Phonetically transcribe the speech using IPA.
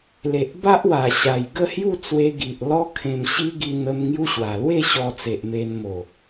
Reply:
le˨ʔba˦ʔ wa˨˩ɕa˨˩j ɡə˥˧hju˥˧t͡swe˧ ɡi˨ʔlɔ˦ kʰẽ˧mɕi˦ ɡi˧n̪ə˧m ŋju˦ɕwa˨˩ lwe˥˧ɕɔ˧t͡se˨ʔ me˧nmo˨˩

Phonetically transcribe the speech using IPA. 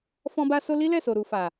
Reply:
fɔ̃˦ba˦so˦ li˦ lɛ˦˨so˨ɾu˨fa˨

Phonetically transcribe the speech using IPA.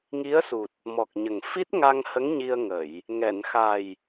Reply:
ŋi˧˥ə̯su˨˩t̚ | mɔ˨˩k̚ɲə˨˩ŋ fi˦˥t̚ŋa˧ŋhə˧˥ŋ ɲi˧ə̯ŋə˨˩˨j | ŋɛ˨˩˨n xa˨˩j

